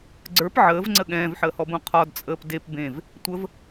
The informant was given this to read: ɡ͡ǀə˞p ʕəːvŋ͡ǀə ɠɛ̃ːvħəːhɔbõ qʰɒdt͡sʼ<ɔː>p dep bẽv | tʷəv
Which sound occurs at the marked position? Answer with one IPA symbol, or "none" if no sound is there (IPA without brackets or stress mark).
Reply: əː